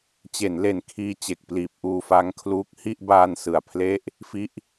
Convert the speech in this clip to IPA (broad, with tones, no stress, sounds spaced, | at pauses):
t͡ɕ e˩˦ n l e˨˩ n kʰ iː˧ t͡ɕ e˨˩ k̚ p l iː˨˩ p̚ ʔ uː˧ f a˦˥ ŋ kʰ l uː˦˥ k̚ h i˥˩ ʔ b aː˧ n s ɯ˨˩ a̯ pʰ l e˥˩ ʔ | f i˦˥ ʔ